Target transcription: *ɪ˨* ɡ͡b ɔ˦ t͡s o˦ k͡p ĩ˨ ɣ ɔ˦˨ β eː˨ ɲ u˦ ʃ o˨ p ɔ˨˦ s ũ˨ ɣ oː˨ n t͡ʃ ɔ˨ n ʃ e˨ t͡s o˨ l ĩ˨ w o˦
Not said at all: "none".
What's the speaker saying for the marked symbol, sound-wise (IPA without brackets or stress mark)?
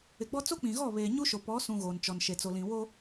ɪ˨